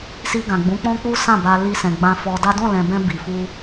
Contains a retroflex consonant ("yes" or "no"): no